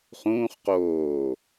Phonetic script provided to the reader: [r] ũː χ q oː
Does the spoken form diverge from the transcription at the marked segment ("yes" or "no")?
yes